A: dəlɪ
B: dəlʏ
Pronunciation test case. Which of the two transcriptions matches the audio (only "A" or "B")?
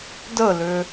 B